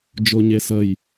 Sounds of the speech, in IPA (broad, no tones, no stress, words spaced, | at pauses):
d͡ʒoɲesəj